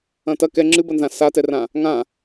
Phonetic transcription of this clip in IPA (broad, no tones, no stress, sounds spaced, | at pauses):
ɐ̃ t ɐ k ɛ ŋ͡ǁ ɨ b ɐ n z ã s a t ɛ r ã | ŋ ã